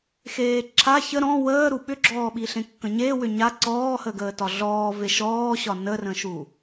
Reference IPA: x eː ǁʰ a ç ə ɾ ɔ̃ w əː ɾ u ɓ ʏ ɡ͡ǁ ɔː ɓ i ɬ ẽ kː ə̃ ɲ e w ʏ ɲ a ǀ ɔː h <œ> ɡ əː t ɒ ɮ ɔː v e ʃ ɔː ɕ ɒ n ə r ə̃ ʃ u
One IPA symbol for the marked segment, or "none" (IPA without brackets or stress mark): ə